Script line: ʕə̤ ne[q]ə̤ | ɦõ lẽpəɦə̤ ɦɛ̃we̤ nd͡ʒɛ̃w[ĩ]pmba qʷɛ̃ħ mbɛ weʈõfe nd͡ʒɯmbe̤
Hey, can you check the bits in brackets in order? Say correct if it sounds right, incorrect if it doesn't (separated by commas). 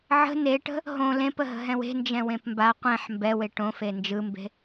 incorrect, incorrect